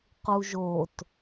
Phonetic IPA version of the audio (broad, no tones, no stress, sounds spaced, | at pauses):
q u ʒ o t